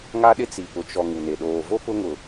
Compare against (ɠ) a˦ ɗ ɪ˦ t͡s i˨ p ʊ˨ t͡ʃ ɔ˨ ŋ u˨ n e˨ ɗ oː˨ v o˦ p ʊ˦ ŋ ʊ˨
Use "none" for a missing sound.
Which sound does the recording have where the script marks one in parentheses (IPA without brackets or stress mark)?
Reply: ŋ